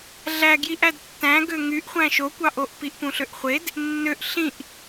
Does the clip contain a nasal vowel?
yes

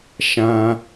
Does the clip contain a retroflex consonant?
no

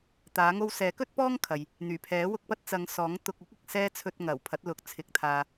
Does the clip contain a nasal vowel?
no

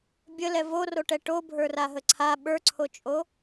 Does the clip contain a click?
yes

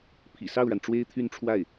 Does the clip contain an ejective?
no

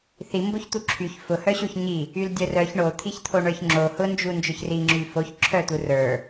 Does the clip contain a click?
yes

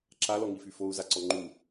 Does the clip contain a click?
yes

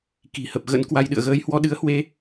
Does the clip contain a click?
no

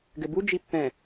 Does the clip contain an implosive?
no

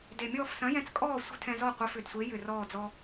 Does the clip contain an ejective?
yes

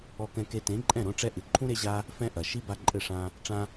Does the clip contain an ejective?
yes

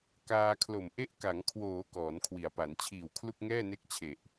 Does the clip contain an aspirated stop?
yes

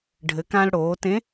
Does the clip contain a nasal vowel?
yes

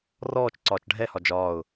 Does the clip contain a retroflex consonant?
yes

